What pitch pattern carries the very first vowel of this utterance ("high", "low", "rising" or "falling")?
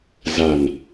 low